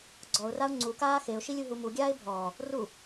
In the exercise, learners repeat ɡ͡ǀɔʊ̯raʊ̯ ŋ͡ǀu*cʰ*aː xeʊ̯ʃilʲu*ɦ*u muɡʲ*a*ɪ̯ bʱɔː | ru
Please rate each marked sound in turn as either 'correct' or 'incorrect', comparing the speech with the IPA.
incorrect: k, correct, incorrect: aː

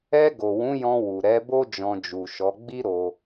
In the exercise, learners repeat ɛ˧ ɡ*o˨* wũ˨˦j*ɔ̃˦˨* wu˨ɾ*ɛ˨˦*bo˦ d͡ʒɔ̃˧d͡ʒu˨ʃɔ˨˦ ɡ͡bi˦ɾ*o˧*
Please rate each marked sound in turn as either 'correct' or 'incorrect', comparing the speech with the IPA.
correct, incorrect: ɔ̃˧, correct, correct

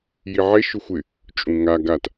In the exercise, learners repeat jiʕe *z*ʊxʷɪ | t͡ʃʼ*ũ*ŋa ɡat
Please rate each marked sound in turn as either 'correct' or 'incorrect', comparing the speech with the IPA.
incorrect: ʃ, correct

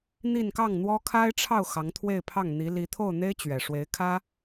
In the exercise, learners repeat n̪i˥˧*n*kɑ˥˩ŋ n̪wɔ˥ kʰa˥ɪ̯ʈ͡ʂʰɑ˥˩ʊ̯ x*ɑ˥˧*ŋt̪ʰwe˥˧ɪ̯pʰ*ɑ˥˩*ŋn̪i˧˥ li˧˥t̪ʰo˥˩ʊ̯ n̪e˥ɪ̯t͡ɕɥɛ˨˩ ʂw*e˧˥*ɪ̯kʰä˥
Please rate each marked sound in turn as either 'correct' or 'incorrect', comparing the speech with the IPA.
correct, incorrect: ɑ˧˥, correct, correct

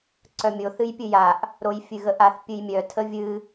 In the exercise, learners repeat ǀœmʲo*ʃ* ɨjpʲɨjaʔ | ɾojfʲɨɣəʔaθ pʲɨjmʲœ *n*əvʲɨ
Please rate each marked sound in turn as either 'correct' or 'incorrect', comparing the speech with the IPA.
incorrect: θ, incorrect: tʰ

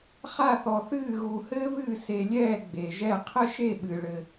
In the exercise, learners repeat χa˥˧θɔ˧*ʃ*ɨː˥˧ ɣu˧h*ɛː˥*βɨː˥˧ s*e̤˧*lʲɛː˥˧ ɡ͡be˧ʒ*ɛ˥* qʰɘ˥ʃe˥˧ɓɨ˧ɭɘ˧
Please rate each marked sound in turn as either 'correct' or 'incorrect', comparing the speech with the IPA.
incorrect: θ, incorrect: ɘː˥, incorrect: e˧, incorrect: ɛ˥˧

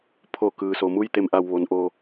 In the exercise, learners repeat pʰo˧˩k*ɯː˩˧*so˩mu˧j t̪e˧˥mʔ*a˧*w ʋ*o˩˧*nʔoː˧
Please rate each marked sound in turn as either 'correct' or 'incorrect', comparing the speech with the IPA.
incorrect: ɯː˩, correct, correct

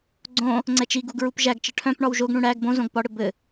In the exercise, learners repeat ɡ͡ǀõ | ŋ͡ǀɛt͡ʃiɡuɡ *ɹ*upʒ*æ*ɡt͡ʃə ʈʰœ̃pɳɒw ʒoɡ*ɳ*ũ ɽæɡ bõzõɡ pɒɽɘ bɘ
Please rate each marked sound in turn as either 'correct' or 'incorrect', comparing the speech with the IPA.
correct, correct, correct

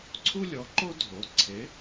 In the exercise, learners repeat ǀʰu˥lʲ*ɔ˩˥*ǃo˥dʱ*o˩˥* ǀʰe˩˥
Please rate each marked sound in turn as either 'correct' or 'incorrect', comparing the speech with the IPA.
correct, correct

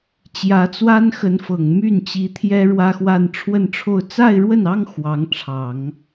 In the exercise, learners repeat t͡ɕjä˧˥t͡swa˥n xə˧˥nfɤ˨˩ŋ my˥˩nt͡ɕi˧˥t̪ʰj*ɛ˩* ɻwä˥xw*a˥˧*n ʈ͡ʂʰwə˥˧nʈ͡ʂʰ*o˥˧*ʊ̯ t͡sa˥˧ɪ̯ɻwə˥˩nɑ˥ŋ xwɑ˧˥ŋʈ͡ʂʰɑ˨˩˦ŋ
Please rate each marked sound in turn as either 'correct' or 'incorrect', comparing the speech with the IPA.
incorrect: ɛ˥, correct, correct

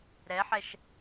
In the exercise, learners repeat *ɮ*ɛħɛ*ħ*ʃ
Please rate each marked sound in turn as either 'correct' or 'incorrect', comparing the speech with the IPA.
incorrect: ɾ, incorrect: none

